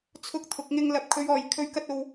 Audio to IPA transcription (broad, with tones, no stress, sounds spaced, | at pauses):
t͡sʰ ʊ˧ k̚ t̪ʰ ʊ˨ k̚ ŋ ɪ˧ ŋ l ɐ˨ p̚ kʰ ɵ˨˧ ɥ ɔː˨ j kʰ ɵ˧ ɥ k ɐ˥ t̚ o˧ w